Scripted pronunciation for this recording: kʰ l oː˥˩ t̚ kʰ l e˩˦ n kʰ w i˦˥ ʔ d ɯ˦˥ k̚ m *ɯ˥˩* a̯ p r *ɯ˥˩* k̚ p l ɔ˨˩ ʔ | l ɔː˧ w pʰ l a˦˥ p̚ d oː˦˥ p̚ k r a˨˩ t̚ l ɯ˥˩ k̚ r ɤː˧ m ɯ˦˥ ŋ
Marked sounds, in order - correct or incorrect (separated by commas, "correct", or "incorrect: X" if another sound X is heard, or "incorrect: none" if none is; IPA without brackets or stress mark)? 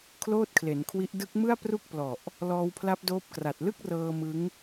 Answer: correct, incorrect: u˥˩